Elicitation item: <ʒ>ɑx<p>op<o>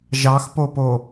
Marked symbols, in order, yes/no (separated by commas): yes, yes, yes